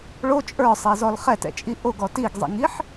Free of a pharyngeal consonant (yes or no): no